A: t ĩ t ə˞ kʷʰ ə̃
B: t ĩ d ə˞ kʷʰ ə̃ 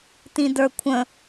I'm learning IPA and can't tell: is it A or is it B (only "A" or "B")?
B